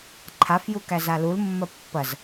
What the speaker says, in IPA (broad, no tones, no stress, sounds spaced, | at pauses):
ǃʰ a f j u k æ z a l u l mː ɐ pː ɐ z